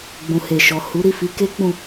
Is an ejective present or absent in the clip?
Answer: absent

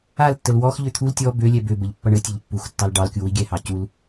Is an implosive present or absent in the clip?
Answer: absent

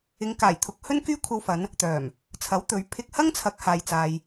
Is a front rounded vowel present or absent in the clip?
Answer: present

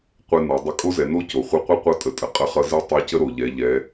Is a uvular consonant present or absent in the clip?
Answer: present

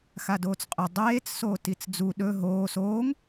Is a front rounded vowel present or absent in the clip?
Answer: absent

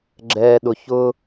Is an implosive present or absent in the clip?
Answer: present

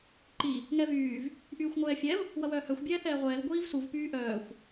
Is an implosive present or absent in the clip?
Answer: absent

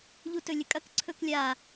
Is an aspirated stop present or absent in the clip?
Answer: present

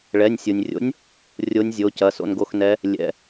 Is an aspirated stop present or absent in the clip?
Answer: absent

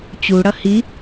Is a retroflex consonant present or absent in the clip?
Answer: present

